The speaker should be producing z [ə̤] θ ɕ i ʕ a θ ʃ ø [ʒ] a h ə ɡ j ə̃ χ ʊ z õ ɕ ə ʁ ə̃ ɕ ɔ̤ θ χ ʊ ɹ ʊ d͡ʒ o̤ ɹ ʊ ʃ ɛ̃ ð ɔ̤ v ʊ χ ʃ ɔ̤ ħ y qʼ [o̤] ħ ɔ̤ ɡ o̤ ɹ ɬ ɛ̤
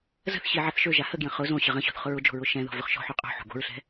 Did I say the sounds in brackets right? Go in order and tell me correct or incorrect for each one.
correct, correct, correct

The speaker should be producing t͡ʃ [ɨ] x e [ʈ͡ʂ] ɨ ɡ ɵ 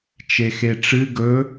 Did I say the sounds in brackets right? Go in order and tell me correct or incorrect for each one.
incorrect: e, correct

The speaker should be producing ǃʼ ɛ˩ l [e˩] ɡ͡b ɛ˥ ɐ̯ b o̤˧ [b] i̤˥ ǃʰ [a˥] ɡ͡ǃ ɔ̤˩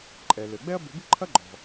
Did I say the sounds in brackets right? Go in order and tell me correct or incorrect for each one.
incorrect: ɘ˩, correct, incorrect: ɐ˥

